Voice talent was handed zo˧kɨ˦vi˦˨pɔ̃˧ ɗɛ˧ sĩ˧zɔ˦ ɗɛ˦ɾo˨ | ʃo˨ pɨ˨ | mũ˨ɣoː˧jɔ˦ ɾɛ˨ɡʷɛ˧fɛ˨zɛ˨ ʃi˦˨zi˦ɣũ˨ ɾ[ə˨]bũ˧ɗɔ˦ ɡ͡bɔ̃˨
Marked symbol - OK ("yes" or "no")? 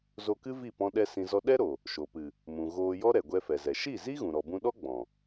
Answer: no